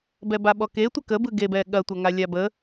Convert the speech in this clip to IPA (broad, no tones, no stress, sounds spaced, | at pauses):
b ɛ b a ɓ ɔ k e tʷ ə k ə b ɯ ɡ e b ɛ ɠ ɐ tʷ ɐ ŋ a lʲ a b ə